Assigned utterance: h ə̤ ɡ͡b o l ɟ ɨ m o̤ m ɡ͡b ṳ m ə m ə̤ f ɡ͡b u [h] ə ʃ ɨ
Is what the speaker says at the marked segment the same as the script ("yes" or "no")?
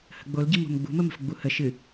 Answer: yes